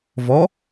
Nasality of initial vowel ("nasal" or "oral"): oral